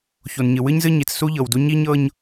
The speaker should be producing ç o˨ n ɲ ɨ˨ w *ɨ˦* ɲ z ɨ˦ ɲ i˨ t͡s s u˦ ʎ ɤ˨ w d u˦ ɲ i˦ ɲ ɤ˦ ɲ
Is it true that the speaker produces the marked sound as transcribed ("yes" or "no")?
yes